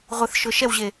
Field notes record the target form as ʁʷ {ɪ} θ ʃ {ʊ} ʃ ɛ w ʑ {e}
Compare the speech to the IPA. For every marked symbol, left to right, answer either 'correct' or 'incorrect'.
correct, correct, correct

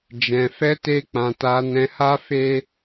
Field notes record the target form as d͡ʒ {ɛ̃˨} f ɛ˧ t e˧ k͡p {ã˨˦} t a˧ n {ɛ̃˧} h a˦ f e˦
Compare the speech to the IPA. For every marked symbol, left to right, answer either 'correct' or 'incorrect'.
correct, incorrect, correct

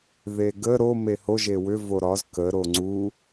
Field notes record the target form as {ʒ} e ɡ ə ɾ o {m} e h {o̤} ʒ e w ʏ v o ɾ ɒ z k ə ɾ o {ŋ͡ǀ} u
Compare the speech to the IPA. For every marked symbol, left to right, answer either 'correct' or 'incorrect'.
incorrect, correct, incorrect, correct

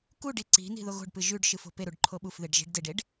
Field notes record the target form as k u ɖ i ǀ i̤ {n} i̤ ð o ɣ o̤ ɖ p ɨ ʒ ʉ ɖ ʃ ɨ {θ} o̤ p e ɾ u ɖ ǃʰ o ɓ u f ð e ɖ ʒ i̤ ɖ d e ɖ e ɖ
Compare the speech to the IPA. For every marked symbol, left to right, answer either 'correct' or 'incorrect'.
correct, incorrect

